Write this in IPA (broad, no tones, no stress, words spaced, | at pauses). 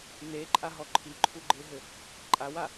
neǃʼaɦɔ ǃʰiǃʰuɡ͡ǃeɦɘ | ǃʼawa